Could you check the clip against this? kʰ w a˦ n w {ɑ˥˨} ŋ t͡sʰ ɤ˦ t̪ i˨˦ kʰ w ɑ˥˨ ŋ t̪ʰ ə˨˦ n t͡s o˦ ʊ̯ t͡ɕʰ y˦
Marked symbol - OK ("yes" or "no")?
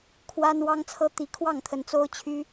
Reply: no